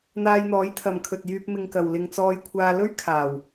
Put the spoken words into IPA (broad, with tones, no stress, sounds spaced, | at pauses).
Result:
n̪ aː˧ j n̪ ɔː˨˥ j t̪ʰ ɐ˨ m kʰ ɵ˨ t̚ j yː˧ p̚ m ɪ˧ ŋ k ɐ˨ w l ɪ˧ ŋ t͡s ɔː˧ j kʷʰ aː˧ l ɵ˥ ɥ kʰ aː˨˩ w